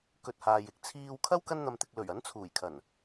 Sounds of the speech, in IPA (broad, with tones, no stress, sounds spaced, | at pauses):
k ɵ˧ t̚ h aː˨ j ɪ˧ k̚ t͡sʰ iː˧ w kʰ ɐ˥ w k ɐ˥ n n̪ ɐ˧ m t̪ ɪ˧ k̚ l ɵ˨˩ ɥ ɐ˨˥ n t͡sʰ uː˨˩ j kʰ ɐ˨˩ n